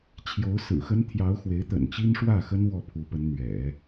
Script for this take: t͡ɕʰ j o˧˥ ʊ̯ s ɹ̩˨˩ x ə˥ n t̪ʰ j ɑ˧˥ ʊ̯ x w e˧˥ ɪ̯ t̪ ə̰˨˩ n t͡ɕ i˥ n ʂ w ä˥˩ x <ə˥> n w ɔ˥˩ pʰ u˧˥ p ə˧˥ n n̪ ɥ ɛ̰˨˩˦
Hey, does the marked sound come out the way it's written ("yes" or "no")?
yes